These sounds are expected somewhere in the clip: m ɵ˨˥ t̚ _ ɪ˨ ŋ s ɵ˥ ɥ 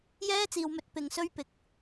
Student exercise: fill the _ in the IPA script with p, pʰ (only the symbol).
p